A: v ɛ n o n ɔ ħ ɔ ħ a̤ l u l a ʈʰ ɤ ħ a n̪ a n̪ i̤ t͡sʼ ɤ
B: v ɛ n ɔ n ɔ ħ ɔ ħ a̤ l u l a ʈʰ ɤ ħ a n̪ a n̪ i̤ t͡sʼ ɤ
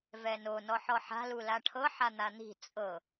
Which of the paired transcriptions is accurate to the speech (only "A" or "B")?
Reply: A